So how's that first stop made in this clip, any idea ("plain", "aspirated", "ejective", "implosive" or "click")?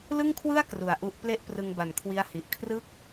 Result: aspirated